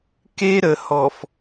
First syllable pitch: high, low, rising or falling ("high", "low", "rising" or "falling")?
high